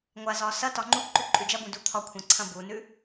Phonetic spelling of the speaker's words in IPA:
ŋʷ a z ɒ s ɐ t ɒ ŋ͡ǃ u ǃ ʉ ǃʼ ʉ d͡ʒ ɐ b ũ d u t̪ʰ ɒ kʷʰ ã ǀʰ ɐ̃ b u n ʉ

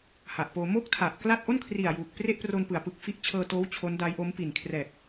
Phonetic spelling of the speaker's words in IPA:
h a˨˩ ʔ p oː˧ m o˥˩ k̚ tʰ a˨˩ ʔ k l a˥˩ t̚ ʔ o˥˩ n kʰ r i˨˩ a̯ j uː˨˩ k̚ p r e˥˩ ʔ p r o˧ n p ɯ˩˦ a̯ p ɯ˨˩ k̚ f i˦˥ ʔ t͡ɕʰ ɤː˧ t oː˦˥ w t͡ɕʰ o˦˥ n d a˦˥ j ʔ o˦˥ m p i˨˩ n kʰ r ɛː˨˩ k̚

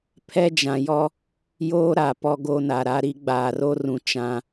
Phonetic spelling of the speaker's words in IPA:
pʰ ɛ˦ d͡ʒ ã˨ j ɔ˦ | j oː˦ ɾ a˨ p ɔ˦ ɡ o˦ n a˨ ɾ a˦ ɾ i˦ ɡ͡b aː˨ r o˦ r ũ˨ t͡ʃ ã˦

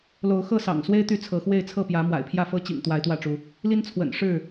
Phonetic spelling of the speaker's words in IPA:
l o˨˦ ʊ̯ x ɤ˥˨ s ɑ̰˨˩ ŋ s w e˦ ɪ̯ t̪ y˥˨ t͡sʰ ɤ˨˦ x w e˥˨ ɪ̯ t͡sʰ ɤ˥˨ p j ä˨˦ m w a̰˨˩ ɪ̯ pʰ j ä˥˨ f ɤ˦ t͡ɕ ḭ˨˩ ŋ t̪ w a˨˦ ɪ̯ t̪ w ä˥˨ ʈ͡ʂ u˨˦ | l i˦ n t͡sʰ w ə̰˨˩ n ʂ ɻ̩˥˨

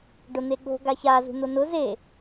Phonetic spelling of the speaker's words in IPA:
ɖ ʊ n̪ e ɠ o̤ ɡ a ç a z ṳ n̪ ʊ n ʊ z e

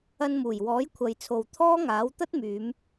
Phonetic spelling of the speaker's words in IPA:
ɐ˧ n m uː˨˩ j w ɔː˨˥ j kʷʰ ɐ˨ j t͡sʰ o˨ w t̪ʰ ɔː˥ ŋ aː˨˥ w t̪ ɐ˥ t̚ m yː˨˧ m

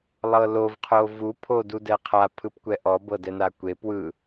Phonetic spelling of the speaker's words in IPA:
lˠ ɤ l o v qʰ o v u pʰ o d u d ɛ qʰ a pʰ ɯ p kʷ ɛ ʔ ɔ b ɤ d ɛ n a kʷ e p w ɯ

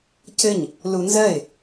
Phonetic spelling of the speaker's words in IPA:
c ɘ ɲ | l u n z ɜ ɪ̯

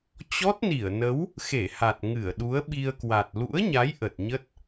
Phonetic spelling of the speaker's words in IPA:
t͡ɕ ɔ˦˥ t̚ n i˧˩ ə̯ n ə˨˦ w | x e˧˩ h a˨˩ t̚ ŋ ɨ˧˩ ə̯ ɗ u˨˦ ə̯ ɓ i˧ ə̯ k w a˨˩ t̚ l ṵ˧˥ ə̯ ɲ a˨˦ j ʔ ə˨˩ t̚ ɲ ə˦˥ t̚

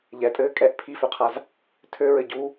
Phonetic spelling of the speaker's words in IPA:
ʎ ɛ tʼ ɘː kʼ ɛ ʔ pʰ i f ø qʰ a z | tʰ ø ɹ ɘ ɟ u

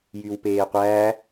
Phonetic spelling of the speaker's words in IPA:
j y w p eː qʷ æː

